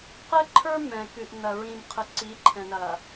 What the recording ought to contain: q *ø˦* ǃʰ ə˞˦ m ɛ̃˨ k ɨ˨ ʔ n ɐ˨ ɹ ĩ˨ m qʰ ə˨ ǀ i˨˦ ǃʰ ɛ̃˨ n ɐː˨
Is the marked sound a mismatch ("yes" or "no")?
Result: yes